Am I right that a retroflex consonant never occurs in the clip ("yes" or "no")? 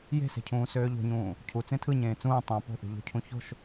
yes